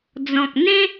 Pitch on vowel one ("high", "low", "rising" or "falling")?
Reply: low